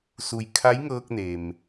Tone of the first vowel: low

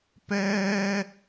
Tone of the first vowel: high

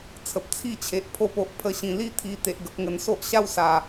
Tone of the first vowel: low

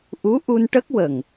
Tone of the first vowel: rising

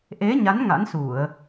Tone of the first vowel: rising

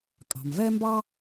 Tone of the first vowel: low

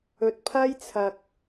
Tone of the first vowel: low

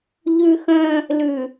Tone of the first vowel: high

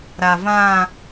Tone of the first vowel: low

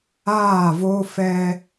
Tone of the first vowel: falling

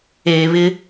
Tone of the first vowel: low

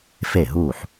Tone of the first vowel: falling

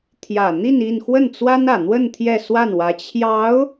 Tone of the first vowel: low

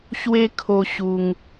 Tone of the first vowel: high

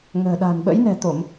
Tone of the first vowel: low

